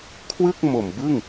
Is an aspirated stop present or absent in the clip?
present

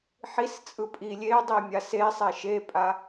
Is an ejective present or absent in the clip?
present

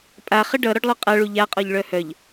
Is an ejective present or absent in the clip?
present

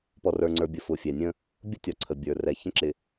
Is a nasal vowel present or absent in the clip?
present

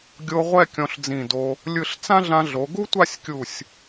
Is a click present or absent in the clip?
absent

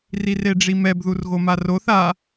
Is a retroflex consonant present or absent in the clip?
present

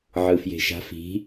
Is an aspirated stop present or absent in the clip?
absent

